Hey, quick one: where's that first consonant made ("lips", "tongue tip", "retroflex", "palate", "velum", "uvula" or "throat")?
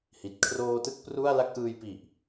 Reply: throat